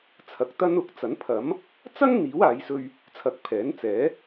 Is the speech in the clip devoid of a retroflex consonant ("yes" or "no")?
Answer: yes